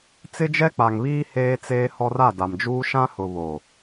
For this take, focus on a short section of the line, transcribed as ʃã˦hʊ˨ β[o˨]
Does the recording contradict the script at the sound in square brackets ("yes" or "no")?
no